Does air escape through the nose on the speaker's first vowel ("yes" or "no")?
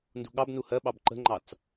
no